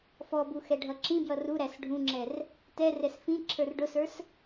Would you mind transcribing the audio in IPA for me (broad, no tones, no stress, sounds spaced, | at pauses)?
f ɔ b u x ɛ ɖʱ ʌ ǁ ĩ b j ʌ r u ɾ æ s ɖʱ ũ ŋ͡ǁ ɛ r | t ɛ r ɛ s f ĩ ǁʰ ə˞ r ɖ ʊ s ə˞ s